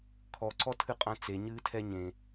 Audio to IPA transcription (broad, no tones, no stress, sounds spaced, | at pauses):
kʰ ɔ ǀ ɔ tʰ ɨ qʼ ã t͡s e ɲ ɨː tʰ ɛ ɲ ẽ